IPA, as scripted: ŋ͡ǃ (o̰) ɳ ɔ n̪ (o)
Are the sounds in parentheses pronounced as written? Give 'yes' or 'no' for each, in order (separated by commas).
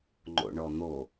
yes, yes